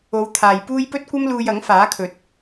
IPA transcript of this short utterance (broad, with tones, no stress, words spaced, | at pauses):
o˨˧wt̪ʰaː˨jpuː˥j pɵ˥t̚kʷɐ˥mluː˧j ɐ˨˥ŋfaː˨˥kʰɵ˨t̚